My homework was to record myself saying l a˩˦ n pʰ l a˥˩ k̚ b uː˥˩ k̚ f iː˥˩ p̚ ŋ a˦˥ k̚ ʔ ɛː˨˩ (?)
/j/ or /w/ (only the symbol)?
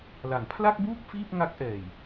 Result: j